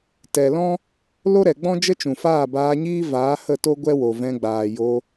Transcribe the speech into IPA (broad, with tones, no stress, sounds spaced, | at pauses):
t ɛ˨ l ɔ̃˦ | l o˦ ɾ ɛ˨ ɡ͡b ɔ̃˦ d͡ʒ ə˦ t͡ʃ ũ˨ f aː˦˨ b aː˧ ɲ iː˦ v aː˨˦ h ə˦˨ t o˦ ɡʷ ɛ˦ w o˨ v ɛ̃˧ ɡ͡b aː˨ j o˧